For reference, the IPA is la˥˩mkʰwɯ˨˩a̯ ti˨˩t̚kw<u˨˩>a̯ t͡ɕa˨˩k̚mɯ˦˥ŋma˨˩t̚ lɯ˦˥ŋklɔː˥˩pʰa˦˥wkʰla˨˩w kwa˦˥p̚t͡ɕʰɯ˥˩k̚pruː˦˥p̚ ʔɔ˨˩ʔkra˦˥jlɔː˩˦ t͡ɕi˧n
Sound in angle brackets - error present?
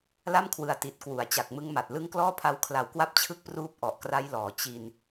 yes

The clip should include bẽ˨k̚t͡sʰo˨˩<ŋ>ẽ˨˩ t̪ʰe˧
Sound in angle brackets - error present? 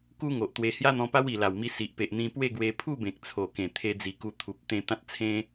yes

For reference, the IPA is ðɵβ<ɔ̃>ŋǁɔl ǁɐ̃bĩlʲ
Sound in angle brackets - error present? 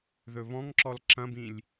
no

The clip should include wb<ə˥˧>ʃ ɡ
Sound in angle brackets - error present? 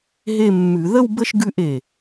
no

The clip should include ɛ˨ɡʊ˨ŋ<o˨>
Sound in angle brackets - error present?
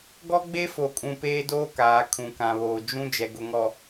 yes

